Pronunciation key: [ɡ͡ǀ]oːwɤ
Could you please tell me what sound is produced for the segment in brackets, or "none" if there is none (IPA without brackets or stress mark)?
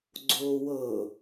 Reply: ɡ͡ǀ